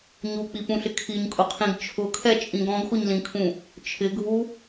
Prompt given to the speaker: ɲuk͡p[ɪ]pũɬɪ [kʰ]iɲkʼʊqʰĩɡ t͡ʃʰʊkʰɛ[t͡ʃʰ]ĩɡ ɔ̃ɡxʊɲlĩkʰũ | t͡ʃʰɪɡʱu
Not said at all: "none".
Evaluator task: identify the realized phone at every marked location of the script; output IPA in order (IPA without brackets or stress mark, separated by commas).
i, kʰ, t͡ʃʼ